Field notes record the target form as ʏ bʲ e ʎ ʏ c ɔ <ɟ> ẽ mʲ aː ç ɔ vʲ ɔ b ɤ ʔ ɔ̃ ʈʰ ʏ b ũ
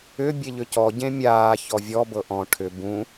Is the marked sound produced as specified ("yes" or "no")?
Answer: yes